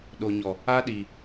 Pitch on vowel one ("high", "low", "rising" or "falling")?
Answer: low